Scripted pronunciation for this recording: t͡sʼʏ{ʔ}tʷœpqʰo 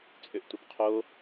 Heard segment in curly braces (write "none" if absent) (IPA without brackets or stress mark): ʔ